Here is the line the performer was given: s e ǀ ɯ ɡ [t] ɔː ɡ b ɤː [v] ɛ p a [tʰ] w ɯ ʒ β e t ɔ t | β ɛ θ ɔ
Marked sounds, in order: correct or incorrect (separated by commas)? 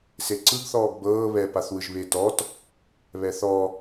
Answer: incorrect, incorrect, incorrect